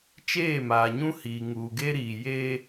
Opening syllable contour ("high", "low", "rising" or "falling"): falling